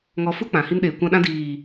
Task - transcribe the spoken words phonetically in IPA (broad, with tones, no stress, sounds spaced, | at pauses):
ŋ ɔ˧ f u˦ k͡p ã˨ h i˧ n ɗ eː˨ kʷ ã˧ ɗ ã˧ d iː˨